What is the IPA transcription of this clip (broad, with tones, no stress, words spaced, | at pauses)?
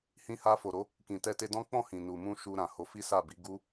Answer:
hĩ˧ha˧fo˨ɾo˨˦ | kĩ˨ tɛ˧te˧dɔ̃˦ k͡pɔ̃˦˨hĩ˨ nu˨mũ˧ ʃu˧ɾã˨ ho˧fi˦sa˦˨bi˨˦ ɡu˦